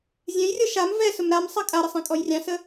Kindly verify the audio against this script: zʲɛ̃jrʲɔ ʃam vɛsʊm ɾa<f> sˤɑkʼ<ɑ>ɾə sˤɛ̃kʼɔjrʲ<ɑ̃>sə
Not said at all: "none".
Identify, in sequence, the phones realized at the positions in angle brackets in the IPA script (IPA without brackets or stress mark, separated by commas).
m, a, ɑ̃